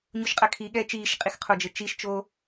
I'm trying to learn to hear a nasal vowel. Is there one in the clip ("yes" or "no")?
no